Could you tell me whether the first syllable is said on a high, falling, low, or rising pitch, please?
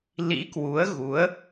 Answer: rising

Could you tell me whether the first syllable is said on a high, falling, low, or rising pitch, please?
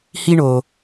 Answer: high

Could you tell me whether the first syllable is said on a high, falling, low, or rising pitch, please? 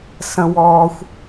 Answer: high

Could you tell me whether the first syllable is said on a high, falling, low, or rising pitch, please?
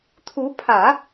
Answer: rising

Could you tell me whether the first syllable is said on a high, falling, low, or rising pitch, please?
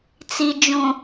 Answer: low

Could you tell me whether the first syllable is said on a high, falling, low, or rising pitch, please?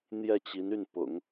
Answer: falling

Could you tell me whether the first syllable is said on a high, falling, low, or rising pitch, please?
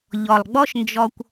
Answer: low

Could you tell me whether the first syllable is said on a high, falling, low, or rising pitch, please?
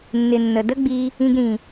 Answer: low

